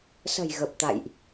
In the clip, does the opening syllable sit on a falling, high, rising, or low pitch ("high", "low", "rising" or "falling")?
low